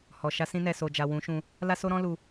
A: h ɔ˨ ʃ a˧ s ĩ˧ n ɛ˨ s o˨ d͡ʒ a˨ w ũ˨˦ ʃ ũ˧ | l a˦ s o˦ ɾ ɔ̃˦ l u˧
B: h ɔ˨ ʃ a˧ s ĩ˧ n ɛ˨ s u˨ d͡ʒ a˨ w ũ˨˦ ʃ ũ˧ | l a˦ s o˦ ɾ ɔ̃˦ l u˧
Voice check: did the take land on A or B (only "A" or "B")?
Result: A